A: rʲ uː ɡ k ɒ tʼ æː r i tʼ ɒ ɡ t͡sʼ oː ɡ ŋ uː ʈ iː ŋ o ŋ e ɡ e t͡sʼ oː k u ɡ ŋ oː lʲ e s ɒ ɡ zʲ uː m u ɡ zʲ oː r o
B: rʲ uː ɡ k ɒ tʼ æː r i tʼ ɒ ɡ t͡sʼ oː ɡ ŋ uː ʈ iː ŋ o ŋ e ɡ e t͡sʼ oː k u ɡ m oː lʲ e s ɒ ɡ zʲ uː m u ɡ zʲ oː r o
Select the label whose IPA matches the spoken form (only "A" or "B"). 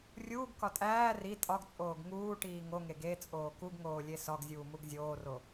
A